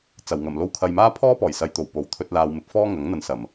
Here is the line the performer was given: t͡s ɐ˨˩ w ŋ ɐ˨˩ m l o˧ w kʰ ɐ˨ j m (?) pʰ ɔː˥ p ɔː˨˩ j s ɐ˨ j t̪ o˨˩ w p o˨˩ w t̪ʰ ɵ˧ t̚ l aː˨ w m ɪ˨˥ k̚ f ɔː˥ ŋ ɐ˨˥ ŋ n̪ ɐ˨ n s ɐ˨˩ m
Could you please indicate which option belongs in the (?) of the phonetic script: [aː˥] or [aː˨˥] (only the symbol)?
aː˥